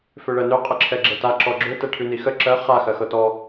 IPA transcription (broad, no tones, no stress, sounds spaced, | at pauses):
f ø ɭ ɜ n ø qʼ ə ǁʰ ɛ ɡ͡ǁ ɛ t a ǁ ɔ ɡ͡ǁ ø t ɛ ʈʰ ʉ n i x ə ǁ ɜ χ a x ɜ x ɤ t ɔ